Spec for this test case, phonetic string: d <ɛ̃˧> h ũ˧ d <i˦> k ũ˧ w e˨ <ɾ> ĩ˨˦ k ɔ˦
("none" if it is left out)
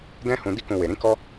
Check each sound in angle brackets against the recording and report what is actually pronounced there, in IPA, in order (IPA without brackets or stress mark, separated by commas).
ɛ̃˦, i˦, ɾ